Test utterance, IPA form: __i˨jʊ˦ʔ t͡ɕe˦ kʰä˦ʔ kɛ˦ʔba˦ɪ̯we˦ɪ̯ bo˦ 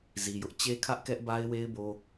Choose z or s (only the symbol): z